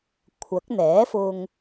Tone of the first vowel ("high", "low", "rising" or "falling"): rising